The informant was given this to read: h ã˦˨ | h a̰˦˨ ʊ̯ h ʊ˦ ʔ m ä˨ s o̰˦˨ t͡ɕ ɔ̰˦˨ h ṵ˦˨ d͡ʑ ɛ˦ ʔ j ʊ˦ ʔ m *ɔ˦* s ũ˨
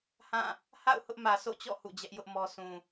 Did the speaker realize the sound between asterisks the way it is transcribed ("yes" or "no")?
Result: yes